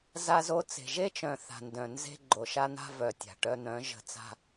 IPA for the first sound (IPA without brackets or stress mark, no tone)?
z